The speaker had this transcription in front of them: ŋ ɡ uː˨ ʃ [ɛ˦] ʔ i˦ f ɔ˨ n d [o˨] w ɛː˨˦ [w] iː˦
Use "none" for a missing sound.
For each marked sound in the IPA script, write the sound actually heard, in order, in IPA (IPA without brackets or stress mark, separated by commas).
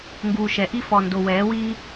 ɛ˨˦, o˨, w